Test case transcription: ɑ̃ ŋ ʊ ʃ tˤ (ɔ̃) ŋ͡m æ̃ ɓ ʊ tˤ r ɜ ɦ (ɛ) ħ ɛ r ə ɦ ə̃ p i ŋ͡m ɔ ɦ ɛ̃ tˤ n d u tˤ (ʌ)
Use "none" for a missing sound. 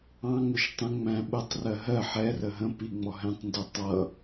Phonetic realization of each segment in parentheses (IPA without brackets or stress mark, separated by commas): ə̃, ɜ, ʌ